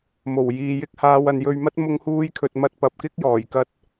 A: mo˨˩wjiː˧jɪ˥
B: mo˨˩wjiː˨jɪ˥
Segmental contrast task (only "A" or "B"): B